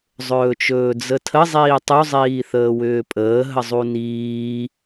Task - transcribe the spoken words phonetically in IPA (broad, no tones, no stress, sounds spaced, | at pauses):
zˤ ɵː t͡ʃ ɵː d͡z ə tʰ ə zˤ iː tˤ u zˤ iː θ əː w ʏː pʼ əː ɦ ə zˤ u n iː